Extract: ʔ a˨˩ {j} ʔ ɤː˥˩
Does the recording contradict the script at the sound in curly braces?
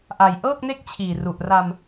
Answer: no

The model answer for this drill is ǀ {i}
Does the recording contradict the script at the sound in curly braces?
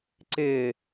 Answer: yes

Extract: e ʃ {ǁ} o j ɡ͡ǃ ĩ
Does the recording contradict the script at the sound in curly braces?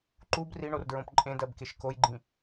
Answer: yes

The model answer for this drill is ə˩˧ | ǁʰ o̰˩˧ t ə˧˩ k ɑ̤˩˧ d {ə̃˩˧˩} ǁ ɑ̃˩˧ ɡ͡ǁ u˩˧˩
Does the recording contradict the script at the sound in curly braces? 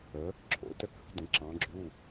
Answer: yes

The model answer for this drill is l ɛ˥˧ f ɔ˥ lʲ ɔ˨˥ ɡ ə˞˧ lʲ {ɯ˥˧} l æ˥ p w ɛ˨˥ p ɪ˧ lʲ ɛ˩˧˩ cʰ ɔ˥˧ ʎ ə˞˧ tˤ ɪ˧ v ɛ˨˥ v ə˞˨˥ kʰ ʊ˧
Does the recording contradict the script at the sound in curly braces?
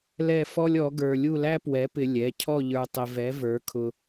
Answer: yes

